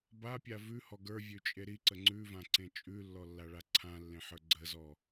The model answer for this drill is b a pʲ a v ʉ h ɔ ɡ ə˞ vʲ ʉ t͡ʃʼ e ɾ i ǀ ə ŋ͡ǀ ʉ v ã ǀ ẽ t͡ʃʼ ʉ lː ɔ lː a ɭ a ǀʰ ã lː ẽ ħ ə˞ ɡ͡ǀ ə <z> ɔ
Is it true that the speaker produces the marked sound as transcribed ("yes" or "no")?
yes